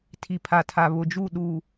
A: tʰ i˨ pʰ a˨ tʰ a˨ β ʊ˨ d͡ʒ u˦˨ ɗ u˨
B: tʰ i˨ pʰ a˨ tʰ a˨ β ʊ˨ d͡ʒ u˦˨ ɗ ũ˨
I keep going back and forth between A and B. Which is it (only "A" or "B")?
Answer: A